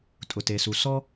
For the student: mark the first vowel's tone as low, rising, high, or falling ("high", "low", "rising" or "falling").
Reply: low